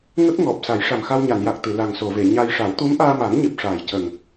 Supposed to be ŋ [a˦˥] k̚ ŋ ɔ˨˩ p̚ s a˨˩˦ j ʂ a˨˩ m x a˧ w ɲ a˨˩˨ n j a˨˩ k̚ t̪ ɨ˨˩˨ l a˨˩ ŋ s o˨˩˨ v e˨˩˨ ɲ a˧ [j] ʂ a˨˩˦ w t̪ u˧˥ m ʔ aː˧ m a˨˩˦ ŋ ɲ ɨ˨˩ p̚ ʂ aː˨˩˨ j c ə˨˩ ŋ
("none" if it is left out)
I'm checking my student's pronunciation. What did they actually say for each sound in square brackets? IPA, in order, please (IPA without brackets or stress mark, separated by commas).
ə˦˥, j